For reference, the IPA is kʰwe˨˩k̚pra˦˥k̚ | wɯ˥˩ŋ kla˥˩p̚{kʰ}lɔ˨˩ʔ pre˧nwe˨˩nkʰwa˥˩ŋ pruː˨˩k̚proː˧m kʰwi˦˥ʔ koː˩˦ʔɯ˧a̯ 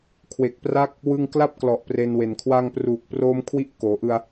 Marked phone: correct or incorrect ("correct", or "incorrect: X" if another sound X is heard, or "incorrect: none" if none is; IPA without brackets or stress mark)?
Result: incorrect: k